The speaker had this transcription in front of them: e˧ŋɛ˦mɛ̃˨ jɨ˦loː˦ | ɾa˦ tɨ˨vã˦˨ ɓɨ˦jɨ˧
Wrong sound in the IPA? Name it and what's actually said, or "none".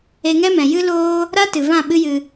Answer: none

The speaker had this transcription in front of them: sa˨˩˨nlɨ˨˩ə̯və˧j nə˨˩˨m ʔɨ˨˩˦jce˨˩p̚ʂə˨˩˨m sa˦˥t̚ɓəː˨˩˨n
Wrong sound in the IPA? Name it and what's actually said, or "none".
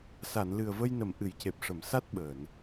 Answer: none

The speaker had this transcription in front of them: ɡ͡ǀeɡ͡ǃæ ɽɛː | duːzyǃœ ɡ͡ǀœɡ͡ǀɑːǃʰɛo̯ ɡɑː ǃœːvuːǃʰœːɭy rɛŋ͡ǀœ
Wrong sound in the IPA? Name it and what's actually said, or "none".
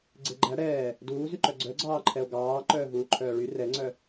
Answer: none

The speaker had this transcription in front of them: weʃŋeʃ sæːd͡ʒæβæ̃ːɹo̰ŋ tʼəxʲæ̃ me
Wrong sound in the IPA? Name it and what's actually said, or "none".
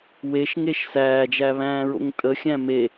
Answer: none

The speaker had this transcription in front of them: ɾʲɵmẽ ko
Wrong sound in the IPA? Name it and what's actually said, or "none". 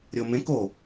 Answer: ɵ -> o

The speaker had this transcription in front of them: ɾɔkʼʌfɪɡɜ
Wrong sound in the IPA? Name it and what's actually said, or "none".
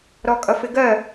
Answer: none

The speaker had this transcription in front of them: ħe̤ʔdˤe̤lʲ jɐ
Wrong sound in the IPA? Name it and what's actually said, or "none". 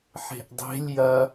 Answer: none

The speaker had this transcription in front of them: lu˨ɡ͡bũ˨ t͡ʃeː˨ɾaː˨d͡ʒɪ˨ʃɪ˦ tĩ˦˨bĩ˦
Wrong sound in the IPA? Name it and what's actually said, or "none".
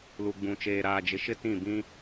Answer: none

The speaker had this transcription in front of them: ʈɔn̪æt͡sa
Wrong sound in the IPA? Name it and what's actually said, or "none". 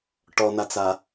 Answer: æ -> a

